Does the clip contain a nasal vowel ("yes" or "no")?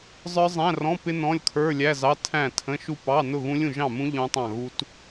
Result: yes